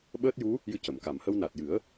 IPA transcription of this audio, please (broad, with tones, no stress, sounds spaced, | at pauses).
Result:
ɓ əː˦˥ t̚ j u˧˥ | j ɨ˧ c ə˨˩˨ m k a˨˩˨ m h ə˧ w n a˨˩ t̚ j ɨ˨˩˦ ə̯